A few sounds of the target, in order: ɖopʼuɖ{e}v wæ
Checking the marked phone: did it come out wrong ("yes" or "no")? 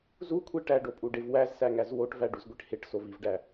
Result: no